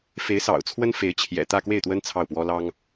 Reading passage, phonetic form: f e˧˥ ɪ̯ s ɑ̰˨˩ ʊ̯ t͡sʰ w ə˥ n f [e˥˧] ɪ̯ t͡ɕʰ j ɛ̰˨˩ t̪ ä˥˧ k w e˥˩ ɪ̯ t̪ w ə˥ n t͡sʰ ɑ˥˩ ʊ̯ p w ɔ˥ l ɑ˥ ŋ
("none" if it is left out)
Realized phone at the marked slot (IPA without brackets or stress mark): e˧˥